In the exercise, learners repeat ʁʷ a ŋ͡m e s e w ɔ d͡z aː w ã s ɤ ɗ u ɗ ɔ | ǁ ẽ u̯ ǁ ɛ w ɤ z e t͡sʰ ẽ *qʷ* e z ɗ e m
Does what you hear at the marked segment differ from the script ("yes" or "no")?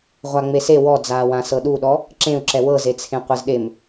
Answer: no